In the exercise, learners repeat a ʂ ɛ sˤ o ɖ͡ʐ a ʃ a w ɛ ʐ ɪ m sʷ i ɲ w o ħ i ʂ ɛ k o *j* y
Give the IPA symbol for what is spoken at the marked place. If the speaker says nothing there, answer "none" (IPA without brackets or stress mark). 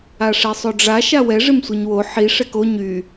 ɲ